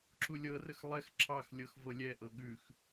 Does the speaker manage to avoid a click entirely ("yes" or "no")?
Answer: no